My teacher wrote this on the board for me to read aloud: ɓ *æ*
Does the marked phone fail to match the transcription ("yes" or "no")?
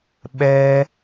yes